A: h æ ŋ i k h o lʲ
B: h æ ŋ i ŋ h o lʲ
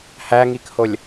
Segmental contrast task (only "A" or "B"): A